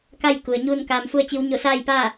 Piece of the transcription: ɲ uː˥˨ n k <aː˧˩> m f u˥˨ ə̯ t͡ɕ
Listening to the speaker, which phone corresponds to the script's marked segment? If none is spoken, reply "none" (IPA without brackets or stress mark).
aː˧